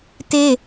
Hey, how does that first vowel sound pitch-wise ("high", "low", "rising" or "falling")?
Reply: high